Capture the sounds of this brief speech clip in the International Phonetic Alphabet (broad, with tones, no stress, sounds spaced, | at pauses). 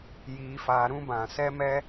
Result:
j i˧ f a˧ ɾ ũ˧ b ã˨ s ɛ˧ m ɛ˧